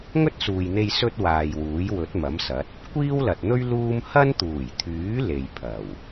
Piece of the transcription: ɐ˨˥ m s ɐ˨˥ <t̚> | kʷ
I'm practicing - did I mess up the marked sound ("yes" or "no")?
no